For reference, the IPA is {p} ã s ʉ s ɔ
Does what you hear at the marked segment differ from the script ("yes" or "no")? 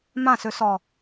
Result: yes